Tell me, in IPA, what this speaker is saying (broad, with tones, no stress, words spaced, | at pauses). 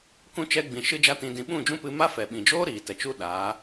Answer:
kũ˦ t͡ʃɛ˧ɡ͡bĩ˨ ʃɨ˦d͡ʒa˦tĩ˧dĩ˧ ɓũ˦˨d͡ʒũ˦pɨ˧ ma˦fɛ˨ɓĩ˨d͡ʒoː˦ ɾiː˨ tɛ˨t͡ʃu˦ɗaː˨˦